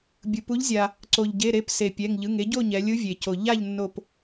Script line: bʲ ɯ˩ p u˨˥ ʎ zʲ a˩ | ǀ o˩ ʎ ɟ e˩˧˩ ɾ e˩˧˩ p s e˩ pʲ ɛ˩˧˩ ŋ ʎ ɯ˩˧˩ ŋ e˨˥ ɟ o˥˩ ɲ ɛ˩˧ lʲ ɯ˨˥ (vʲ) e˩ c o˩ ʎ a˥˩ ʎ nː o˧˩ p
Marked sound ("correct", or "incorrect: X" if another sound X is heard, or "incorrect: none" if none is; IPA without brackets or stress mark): correct